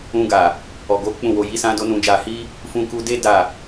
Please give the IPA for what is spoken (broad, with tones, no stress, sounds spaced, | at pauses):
ũ˧ ɡ a˨ | ɔ˨ ɡ o˨˦ k͡p ũ˦˨ w o˧ j i˦ s ã˦ d o˦ n ũ˧ d͡ʒ a˧ h i˦ | f ũ˧ k u˧ d e˦ d a˦˨